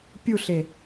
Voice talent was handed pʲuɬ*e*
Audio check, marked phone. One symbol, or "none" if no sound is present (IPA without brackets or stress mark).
e